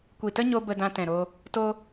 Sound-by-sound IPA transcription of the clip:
kʷi˨tə˦ɲo˧ bə˧dã˧tɛ̃˨ ɾo˧ | to˧

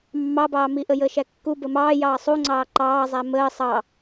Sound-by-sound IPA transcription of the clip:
mːɑbɑːmi ʔəjəːʃækːu bəmɑː jɑːsˤuŋ͡ǀɑː ǃɑːzˤæ məː sˤɑ

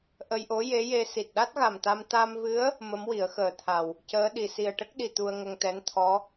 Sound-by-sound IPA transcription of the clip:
ʔə˧jʔo˧˥ je˧˥je˧ si˨˩t̚ɗa˦˥t̚ɣa˨˩mt̪a˧m t̪a˧mvɨ˧˥ə̯ | mə˧˥mwi˨˩˦ə̯xəː˨˩t̪ʰa˨˩w | cəː˧˥ɗi˨˩ si˨˩ə̯ʈə˦˥k̚ɗi˨˩ t̪u˧ə̯ŋə˧ŋt̪ɛ˧˥n t̪ʰɔ˧˥

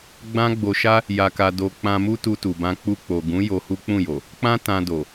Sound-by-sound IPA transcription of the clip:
ɡ͡bã˦ɡ͡bo˧ʃa˦ | ja˧ka˧ do˧ k͡pã˧mu˦ tu˧tu˨bã˧ k͡pu˧k͡po˨ɡũ˨˦ jo˧hu˦k͡pũ˦˨jo˨ | k͡pã˦ tã˧do˨

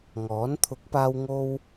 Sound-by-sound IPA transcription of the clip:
ŋɔː˨˥n t̪ʰʊ˨˥k̚paː˧w ŋo˧w

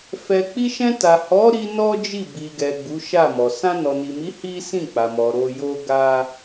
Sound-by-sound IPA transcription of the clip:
fɛ˨ k͡pi˧ʃɛ̃˧ta˨hɔ˨˦ ɾi˧ nɔ˦d͡ʒi˦˨ bi˨ɡɛ˨ ɡ͡bu˨˦ʃa˦˨mɔ˨ sã˧nɔ˨ni˨mi˨˦ hi˦ sĩ˦˨k͡pa˨mɔ˨ ɾo˧jo˦ ɡa˦

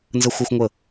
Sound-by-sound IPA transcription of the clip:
nzə˦xʷæ˦xʷ ŋʷə˦˨

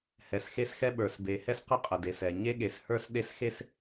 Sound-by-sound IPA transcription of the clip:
hɛ˨sxe˦sxɛ˦ɓə˞˨s be˨hɛ˦sqə˦ qʼə˨de˨sɛ˨ ɲe˦ɠe˨shə˞˦s ɗe˦sxe˦s

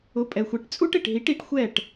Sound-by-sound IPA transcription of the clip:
ʊ˨˥pʼɛ˨xʷe˨˥ʈ t͡sʼu˥ʈ ɪ˨ʈɦi˨˥ʈ i˨˥ʈxʷɛ˥˨ʈ

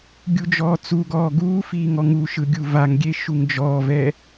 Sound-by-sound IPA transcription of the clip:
ɡʲud͡ʒɔːt͡suɡɔː ɡuːfiː ŋɔŋuʃɯ ɡʲuvaŋɡʲe ʃuŋd͡ʒɔːvɛ

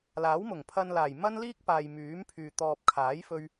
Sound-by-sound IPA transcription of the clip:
laː˨˥wmʊ˨˩ŋpʰɐ˧n laː˨˩jmɐ˥n liː˥k̚paː˨j myː˨˥mpʰyː˨ t̪ɔː˨p̚kʰaː˨˥jfɵ˧ɥ

